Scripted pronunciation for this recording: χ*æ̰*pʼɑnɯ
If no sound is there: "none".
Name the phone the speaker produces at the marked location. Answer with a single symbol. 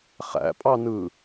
æ̰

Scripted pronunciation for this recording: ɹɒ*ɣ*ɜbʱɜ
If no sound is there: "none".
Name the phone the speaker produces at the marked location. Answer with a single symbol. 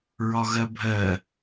ɣ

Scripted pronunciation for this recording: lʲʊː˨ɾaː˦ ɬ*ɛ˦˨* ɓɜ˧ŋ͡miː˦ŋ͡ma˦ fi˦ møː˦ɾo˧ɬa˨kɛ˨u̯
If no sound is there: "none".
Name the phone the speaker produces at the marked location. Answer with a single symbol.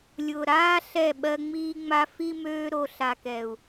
ɛ˦˨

